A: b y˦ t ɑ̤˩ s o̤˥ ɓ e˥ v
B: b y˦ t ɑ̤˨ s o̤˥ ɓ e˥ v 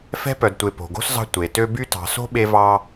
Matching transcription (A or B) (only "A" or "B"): B